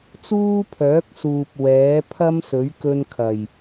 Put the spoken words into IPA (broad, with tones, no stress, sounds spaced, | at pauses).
t͡s uː˥ pʰ œː˨˥ k̚ s uː˨ p̚ w ɛː˨˥ pʰ ɐ˥ m s ɵ˨˥ ɥ k ɵ˧ n kʰ ɐ˨˩ j